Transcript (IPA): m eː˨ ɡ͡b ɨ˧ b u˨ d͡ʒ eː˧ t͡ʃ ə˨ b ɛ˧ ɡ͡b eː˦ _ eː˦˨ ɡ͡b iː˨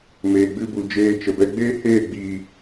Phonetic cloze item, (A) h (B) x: A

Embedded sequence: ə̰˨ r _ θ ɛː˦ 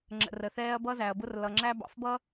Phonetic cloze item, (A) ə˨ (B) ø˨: A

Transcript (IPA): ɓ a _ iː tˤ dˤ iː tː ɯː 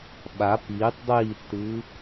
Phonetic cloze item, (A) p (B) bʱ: A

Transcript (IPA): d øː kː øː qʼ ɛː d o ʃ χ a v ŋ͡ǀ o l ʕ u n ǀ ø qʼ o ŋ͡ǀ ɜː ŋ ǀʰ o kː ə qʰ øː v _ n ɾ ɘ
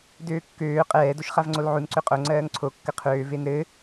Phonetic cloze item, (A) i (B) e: B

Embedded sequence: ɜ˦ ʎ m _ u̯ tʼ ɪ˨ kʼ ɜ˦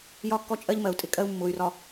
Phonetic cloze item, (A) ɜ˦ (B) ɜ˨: B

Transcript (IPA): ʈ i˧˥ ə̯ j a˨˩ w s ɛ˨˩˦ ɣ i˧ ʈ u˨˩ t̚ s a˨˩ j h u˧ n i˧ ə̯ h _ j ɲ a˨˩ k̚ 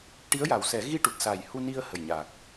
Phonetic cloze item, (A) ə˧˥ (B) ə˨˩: B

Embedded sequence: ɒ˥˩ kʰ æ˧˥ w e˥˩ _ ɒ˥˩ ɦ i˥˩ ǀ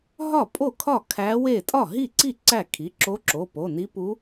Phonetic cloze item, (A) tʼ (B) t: A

